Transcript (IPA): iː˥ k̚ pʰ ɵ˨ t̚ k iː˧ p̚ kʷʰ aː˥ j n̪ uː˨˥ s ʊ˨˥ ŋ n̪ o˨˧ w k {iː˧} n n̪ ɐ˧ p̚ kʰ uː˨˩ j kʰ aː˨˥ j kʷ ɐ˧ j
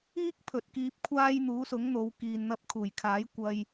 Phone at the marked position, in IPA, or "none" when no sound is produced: iː˨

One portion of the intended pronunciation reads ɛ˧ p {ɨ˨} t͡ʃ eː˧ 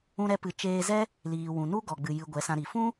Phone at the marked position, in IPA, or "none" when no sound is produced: ɨ˨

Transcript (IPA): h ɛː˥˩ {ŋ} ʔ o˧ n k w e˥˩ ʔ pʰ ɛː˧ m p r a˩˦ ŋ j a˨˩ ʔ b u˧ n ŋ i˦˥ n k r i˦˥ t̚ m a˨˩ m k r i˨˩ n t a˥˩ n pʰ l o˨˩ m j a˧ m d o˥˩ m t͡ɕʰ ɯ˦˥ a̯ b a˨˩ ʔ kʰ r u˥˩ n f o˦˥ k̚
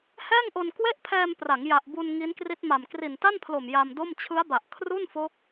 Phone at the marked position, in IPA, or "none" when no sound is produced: ŋ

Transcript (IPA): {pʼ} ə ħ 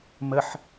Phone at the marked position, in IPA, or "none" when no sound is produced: m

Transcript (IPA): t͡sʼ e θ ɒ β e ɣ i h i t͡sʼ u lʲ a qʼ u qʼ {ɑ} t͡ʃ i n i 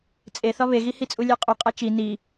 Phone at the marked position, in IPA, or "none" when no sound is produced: a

